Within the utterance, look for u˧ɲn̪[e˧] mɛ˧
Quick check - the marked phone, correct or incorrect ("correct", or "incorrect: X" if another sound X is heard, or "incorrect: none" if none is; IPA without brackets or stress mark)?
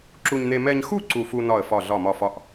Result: correct